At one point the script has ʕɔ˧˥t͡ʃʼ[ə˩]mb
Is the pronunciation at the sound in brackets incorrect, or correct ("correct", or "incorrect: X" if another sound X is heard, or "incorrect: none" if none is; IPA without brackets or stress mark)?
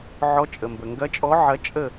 correct